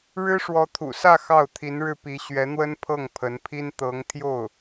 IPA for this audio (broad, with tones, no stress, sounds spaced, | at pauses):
ɻ ɻ̩˥ ʂ w ɔ˧˥ t̪ʰ ṵ˨˩ s ä˥˧ x ɑ˥˩ ʊ̯ t̪ʰ i˧˥ n ɻ ɻ̩˥˩ p i˧˥ ɕ ɥ ɛ˧˥ n̪ w ə˥ n pʰ ɤ˥˩ ŋ pʰ ə˧˥ n pʰ i˥ n t̪ ɤ˧˥ ŋ t̪ʰ j o˥˩ ʊ̯